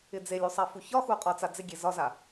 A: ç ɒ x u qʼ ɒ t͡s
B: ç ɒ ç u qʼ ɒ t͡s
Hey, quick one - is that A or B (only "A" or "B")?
A